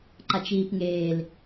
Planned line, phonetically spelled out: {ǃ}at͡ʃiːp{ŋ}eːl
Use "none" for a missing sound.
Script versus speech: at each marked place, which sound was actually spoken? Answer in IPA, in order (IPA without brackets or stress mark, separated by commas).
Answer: ǃ, ŋ